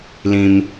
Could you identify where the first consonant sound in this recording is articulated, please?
alveolar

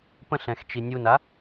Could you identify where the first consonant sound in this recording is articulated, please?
labial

